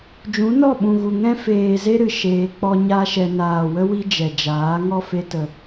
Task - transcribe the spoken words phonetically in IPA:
d͡ʒ ũ˨˦ n ɔ˦˨ ɓ ũ˨ ɣ u˨ ŋ ɛ̃˦ f eː˨ z e˦ ɾ ɨ˧ ʃ eː˧ k͡p ɔ˦ ɲ a˦ ʃ ɛ˧ n aː˨ w ə˦ w i˦ d͡ʒ ɛ˨ d͡ʒ aː˨˦ ŋ ɔ˦ f e˧ t ə˨

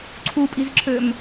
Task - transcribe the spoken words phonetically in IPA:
ǀʰ u pʼ i z ǁʰ ø m

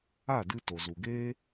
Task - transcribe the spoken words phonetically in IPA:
a˦˨ d ɨ˧ t o˨ z u˨ ɡ eː˦

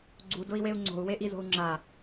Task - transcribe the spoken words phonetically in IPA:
ɡ͡ǀ u d ʊ i̯ w e u̯ ŋ͡ǀ o̤ u̯ w e ʔ i z o̤ u̯ ŋ͡ǁ a

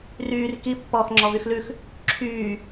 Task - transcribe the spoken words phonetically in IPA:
r yː r k i pː ɔː x ŋ͡ǁ ɔ v y x l ʉ x | ǁʰ yː

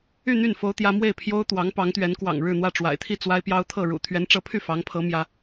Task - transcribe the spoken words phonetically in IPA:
y˥˧ n̪ y˥˩ n f o˥ ʊ̯ t̪ j ä˥ m w e˥˩ ɪ̯ pʰ j o˥ ʊ̯ t̪ w ɑ˧˥ ŋ p ɑ˧˥ ŋ t̪ ɥ ɛ˧˥ n k w ɑ̰˨˩ ŋ ɻ ɻ̩˥˧ n̪ w ä˥˩ ʈ͡ʂ w a̰˨˩ ɪ̯ t̪ʰ i˥˩ t͡s w a˥ ɪ̯ p j ɑ˥ ʊ̯ t̪ʰ ɤ˥˩ ɻ ṵ˨˩ t̪ʰ ɥ ɛ˧˥ n ʈ͡ʂ ɤ˧˥ pʰ y˥˩ f ɑ˧˥ ŋ pʰ ɤ˧˥ m j ä˧˥

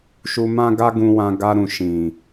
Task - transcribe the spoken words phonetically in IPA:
ʃ u˧ m ã˦ ɡ a˦ ɡ ũ˧ w ã˧ ɡ a˧ ɾ ũ˨ ʃ ĩ˨

